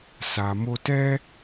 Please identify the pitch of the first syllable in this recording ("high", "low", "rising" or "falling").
low